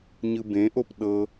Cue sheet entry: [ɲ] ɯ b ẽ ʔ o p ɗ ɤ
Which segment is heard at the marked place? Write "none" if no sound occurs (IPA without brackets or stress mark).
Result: ɲ